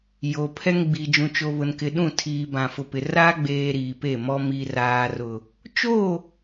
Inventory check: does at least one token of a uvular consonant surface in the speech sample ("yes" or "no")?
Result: no